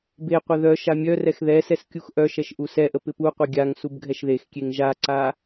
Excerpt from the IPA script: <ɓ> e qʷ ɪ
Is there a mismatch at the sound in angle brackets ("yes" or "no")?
yes